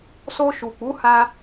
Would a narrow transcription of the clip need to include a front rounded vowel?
no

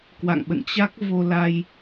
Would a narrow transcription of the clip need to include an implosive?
yes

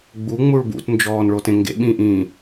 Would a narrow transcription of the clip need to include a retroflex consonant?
yes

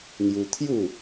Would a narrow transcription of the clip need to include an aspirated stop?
yes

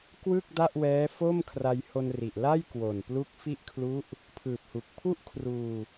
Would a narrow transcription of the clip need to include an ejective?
no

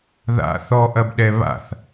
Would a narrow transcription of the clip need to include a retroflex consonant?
no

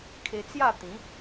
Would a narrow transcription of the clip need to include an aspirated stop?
yes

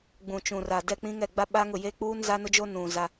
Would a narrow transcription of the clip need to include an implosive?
yes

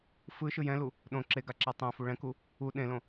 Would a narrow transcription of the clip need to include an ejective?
no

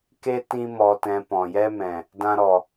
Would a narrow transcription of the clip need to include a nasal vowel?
yes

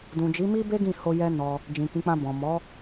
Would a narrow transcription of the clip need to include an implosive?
no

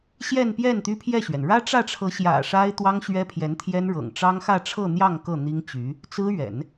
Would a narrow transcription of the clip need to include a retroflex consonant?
yes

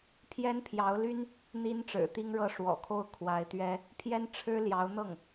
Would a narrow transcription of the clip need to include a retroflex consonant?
yes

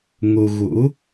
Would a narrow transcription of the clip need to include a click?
no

